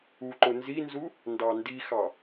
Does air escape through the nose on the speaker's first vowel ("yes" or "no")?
no